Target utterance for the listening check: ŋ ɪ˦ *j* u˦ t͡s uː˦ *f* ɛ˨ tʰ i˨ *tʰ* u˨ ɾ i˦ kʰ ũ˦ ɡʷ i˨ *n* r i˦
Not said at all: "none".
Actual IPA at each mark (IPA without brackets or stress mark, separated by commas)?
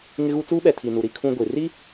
ɣ, ɓ, n, none